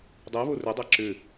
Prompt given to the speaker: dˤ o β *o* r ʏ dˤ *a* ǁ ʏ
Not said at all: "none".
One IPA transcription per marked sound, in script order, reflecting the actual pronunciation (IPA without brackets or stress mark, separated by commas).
o, a